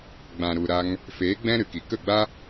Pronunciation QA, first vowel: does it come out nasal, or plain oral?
nasal